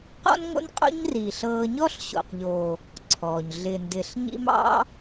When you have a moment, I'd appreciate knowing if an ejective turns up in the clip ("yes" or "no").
yes